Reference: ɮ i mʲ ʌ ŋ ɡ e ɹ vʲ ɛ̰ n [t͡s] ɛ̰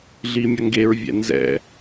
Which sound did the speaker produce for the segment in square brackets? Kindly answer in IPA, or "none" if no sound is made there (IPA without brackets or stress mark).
z